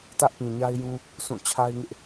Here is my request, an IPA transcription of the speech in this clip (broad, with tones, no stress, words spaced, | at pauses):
tä˦ʔpĩ˨ɲa˦ɪ̯jũ˦ | sʰũ˦˨ t͡ɕʰa˦ɪ̯ŋɪ˦ʔ